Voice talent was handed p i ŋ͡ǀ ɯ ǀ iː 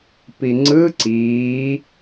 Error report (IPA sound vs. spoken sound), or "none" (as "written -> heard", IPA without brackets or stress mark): none